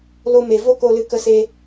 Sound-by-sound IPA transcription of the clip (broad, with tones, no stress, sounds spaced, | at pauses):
l o˧ m e˨ v o˦ k o˧ l ɨ˧ k ə˧ s e˧